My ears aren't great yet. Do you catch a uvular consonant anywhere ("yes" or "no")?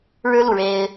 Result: no